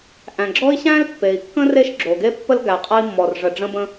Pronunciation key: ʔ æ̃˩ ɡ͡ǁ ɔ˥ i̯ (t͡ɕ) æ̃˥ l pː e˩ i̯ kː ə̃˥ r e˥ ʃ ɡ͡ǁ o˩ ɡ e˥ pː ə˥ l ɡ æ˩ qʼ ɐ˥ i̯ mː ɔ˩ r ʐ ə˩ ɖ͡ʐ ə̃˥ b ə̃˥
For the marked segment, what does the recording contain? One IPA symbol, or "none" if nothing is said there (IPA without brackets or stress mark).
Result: ɕ